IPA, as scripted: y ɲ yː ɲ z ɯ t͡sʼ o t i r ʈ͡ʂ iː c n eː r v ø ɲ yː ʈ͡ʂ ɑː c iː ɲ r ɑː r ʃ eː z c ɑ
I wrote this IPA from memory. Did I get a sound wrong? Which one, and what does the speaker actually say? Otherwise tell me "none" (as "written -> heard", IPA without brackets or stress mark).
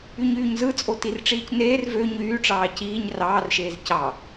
none